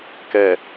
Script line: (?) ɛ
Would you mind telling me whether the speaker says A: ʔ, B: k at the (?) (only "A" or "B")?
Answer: B